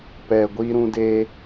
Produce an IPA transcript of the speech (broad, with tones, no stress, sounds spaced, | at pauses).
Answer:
p ɛ˨ ɡʷ i˧ ɾ ũ˧ d eː˧